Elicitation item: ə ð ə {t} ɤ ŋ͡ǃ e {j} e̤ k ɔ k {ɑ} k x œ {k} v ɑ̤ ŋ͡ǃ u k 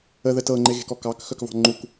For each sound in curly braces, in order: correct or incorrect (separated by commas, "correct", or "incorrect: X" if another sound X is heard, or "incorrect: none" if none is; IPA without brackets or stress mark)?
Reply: correct, incorrect: ɣ, correct, correct